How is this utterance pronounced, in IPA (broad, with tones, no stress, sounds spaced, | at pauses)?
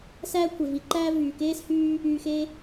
s æː˥ kʷʰ e˩ v i˨ ǃ æː˥ v yː˩ k eː˥ s h yː˦ | yː˨ x e˦